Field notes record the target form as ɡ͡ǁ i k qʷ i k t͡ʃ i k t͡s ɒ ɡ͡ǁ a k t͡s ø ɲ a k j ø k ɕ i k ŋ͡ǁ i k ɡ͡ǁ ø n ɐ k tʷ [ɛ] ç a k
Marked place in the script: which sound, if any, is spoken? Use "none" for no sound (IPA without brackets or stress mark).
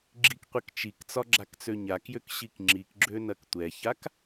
ɛ